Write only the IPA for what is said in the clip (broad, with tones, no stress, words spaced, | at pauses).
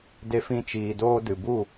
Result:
de˧fĩ˧t͡ʃiː˨ doː˧dɨ˨ bu˦˨